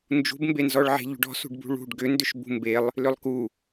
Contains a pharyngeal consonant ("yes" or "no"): yes